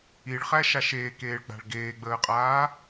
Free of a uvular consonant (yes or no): no